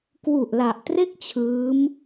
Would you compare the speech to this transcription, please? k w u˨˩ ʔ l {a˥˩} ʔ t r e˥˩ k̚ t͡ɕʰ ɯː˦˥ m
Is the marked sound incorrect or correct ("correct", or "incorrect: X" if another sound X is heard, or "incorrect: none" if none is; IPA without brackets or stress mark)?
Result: incorrect: a˨˩